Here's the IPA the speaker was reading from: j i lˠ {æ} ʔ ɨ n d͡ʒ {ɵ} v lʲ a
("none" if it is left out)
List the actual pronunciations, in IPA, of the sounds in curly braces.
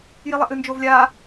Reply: ɐ, o

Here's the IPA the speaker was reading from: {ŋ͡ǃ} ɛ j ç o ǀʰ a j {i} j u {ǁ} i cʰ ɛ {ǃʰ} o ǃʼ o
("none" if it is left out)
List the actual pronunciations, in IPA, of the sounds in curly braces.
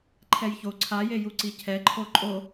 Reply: ǃʰ, e, ǀ, ǃʰ

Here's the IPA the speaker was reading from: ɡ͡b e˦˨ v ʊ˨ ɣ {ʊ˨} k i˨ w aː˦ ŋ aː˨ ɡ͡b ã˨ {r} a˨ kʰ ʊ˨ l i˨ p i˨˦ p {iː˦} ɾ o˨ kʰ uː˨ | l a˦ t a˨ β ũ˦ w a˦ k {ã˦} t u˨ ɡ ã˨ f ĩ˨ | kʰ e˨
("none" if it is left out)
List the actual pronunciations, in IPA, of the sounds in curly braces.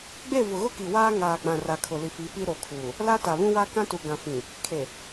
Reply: ʊ˦, r, i˦, ã˦

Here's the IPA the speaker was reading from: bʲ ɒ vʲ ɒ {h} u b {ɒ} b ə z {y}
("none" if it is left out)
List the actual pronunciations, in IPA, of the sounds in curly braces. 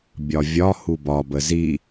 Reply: h, ɒ, i

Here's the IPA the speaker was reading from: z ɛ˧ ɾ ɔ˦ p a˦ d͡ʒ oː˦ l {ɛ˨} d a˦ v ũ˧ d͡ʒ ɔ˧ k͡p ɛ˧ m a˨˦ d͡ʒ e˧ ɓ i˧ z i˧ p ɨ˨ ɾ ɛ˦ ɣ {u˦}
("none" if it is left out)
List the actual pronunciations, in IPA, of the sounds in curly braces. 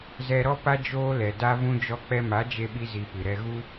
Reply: ɛ˨, u˦

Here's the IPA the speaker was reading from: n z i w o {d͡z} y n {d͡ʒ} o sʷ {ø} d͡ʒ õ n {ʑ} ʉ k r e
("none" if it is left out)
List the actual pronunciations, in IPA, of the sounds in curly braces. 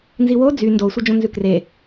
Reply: d͡z, d, e, z

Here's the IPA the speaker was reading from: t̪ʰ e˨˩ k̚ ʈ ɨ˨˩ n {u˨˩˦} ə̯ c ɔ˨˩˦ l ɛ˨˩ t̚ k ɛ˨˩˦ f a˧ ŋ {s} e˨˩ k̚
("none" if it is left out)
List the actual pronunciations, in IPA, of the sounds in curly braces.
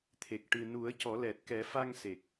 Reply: u˨˩˦, s

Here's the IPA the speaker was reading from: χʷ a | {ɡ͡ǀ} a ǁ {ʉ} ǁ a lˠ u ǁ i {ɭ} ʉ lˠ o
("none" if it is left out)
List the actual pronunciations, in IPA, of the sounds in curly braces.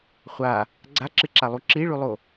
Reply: ɡ͡ǀ, ɨ, ɭ

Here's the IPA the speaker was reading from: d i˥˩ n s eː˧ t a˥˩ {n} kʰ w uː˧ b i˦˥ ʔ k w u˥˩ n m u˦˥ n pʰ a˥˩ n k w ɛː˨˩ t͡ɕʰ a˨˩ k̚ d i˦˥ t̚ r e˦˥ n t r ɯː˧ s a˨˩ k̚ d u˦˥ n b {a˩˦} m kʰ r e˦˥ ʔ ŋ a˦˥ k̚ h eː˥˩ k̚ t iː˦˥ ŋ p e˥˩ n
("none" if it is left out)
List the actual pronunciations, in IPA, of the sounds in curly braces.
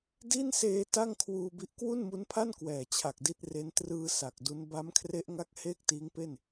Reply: ŋ, a˦˥

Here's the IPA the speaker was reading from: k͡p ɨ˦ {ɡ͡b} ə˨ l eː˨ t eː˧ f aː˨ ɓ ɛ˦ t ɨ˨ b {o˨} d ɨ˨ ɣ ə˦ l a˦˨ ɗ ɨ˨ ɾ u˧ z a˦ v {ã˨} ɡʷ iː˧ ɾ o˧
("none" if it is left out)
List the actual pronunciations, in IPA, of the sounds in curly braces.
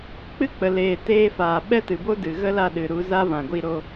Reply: k͡p, o˦, ã˨

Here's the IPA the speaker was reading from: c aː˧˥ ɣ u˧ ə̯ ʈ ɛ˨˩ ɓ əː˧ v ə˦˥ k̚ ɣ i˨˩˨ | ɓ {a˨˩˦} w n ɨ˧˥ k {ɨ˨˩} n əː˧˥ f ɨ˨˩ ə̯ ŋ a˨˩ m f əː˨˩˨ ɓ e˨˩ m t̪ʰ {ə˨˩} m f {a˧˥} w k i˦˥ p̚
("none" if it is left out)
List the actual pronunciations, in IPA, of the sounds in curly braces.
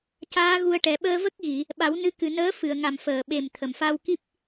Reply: a˨˩˦, ɨ˨˩, ə˨˩, a˧

